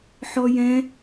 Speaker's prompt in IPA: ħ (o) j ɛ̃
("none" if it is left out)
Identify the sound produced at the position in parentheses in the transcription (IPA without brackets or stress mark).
ɔ